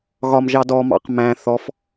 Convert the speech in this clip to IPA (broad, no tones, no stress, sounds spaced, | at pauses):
ɣ ɒ m ʒ ɑ d ɔ m ɑ̰ q m æ̃ θ ɔ f